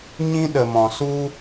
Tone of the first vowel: high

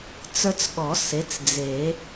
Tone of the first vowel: high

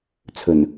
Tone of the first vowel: low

